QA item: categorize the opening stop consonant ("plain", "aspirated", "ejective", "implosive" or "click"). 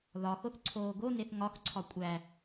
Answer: click